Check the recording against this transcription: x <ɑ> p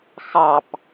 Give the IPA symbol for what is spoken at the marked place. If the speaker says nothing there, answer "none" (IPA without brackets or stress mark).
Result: ɑ